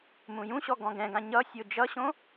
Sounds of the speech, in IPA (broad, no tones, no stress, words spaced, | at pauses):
mũjũɕɔ ɡɔ̃ɡɛ̃ɡã ɲʌ sʲod͡ʒʌɕõ